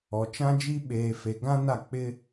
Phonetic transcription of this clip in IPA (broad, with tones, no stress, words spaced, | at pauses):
ɔ˨t͡ʃã˦d͡ʒi˦ ɓeː˨fe˨ ɡã˦na˦˨ k͡pɪ˦